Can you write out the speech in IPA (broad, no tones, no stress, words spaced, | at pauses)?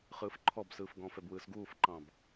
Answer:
χɯːfǃʰɔbsɯːfɡɔ̃ːf ɛbwɯːsɡuːfǃɑ̃b